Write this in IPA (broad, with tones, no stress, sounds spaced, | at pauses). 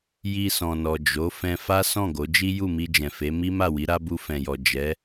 j i˧ s ɔ̃˨ n ɔ˨ d͡ʒ o˨˦ f ɛ̃˧ f a˦ s ɔ̃˦˨ ɡ o˨˦ d͡ʒ i˦ j u˦˨ m i˧ d͡ʒ ɛ̃˨ f e˨˦ m i˦ m a˦˨ w i˨˦ ɾ a˦ b u˧ f ɛ̃˨ j ɔ˨ d͡ʒ ɛ˨˦